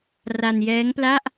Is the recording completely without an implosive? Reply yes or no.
yes